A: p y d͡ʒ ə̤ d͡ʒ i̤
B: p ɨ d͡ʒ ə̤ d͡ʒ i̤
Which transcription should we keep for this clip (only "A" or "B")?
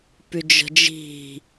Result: A